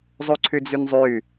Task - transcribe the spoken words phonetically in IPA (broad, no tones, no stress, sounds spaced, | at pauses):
zˤ u ǀʰ ʉ d͡z y n zˤ ʉ